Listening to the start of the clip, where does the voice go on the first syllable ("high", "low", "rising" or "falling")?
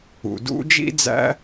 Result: low